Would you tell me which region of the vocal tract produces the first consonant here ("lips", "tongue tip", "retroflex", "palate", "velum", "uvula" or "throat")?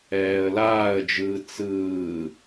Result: tongue tip